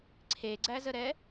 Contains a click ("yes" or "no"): yes